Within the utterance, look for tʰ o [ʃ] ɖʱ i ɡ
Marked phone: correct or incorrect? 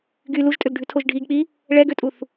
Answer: incorrect